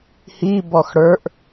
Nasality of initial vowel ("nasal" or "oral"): oral